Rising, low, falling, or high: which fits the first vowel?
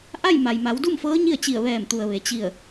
falling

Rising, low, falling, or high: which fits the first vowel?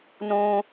low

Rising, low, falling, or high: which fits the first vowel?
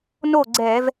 falling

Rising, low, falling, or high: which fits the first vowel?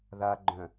low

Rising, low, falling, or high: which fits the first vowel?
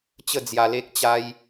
falling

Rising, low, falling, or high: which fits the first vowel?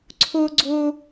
high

